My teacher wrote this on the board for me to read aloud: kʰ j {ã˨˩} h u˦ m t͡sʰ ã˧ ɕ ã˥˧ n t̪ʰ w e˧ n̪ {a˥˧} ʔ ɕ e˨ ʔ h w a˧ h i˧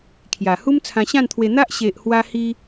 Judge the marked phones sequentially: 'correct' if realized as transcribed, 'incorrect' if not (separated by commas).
incorrect, incorrect